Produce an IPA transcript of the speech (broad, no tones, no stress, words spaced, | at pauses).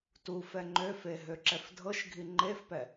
tu fɛŋ͡ǃøfe ɦøǁɛfdʱɤʃɡʱi ŋ͡ǃefpɛ